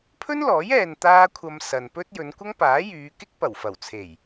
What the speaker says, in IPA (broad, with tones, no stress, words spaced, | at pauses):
pʰɵ˥nlɔː˨˥j ɛː˧nt̪aː˥kʷʰɐ˧m sɐ˨npɵ˥t̚ jɵ˨˧nkʷɐ˥ŋpaː˨˥jyː˨˧ kɪ˥k̚pɐ˨˩wfɐ˨˩wt͡sʰe˨˩j